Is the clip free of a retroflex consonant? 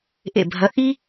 yes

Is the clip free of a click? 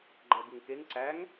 no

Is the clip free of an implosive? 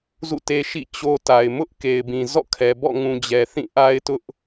yes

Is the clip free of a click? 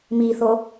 yes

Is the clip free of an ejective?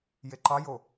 yes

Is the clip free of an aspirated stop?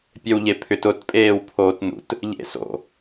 no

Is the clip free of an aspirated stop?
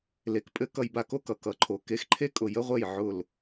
no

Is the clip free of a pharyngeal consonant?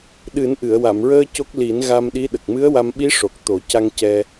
yes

